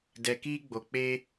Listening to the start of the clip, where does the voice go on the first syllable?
low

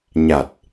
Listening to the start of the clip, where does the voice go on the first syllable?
low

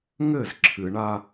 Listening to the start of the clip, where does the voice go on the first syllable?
falling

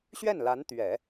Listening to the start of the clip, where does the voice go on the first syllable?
falling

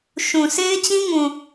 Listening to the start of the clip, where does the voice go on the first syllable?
low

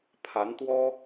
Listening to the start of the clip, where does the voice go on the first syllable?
rising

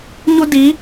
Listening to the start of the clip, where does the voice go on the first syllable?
high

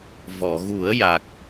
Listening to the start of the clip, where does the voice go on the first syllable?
low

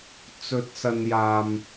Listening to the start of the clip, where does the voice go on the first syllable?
rising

